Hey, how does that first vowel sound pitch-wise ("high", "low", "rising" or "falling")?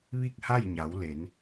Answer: falling